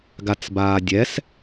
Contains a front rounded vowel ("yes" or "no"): no